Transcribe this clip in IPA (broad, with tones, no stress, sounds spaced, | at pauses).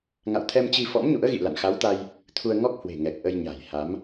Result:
ŋ a̰˧˨ w t̪ʰ ɛ˧ m t͡ɕ i˧ f ɔ̰˧˥ m ɲ ṵ˧˥ ə̯ ɣ ḭ˧˨ l a̰˧˨ n x a˨˦ w t̪ a˧ j | t̪ʰ u˧ ə̯ ŋ ɔ˦˥ k̚ h w e̤˨˩ ŋ ɛ˨˩ k̚ ʔ ə˧ j ɲ a̤˨˩ j h a˨˦ m